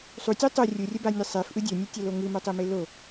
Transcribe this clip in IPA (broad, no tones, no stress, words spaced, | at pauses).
sˤutʲœ tˤʊ rʲurʲəbanʲɯ sˤefʔɯ dʲœnʲɯtʲɐlo ŋɯmœtˤeme lo